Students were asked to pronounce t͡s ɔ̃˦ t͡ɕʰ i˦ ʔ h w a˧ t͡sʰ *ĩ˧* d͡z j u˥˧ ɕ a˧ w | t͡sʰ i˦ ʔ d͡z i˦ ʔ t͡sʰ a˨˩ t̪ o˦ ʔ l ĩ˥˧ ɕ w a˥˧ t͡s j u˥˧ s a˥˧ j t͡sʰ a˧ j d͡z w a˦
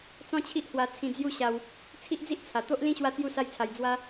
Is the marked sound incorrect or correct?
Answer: correct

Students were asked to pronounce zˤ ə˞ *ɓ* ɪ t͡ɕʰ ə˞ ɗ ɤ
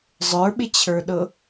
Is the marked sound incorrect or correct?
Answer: correct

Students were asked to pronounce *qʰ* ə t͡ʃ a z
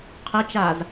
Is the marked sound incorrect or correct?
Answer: correct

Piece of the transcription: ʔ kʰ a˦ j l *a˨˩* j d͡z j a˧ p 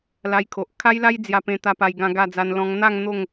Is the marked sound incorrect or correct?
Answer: incorrect: a˦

